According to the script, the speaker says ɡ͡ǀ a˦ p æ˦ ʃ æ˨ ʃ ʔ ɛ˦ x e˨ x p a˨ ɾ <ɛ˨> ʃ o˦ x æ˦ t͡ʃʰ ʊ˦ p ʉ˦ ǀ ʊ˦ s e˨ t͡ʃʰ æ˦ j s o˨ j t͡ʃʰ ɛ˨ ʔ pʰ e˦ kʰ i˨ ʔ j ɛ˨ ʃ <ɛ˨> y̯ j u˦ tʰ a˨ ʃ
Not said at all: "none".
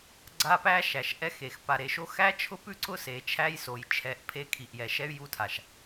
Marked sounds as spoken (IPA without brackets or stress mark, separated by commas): e˨, ɛ˦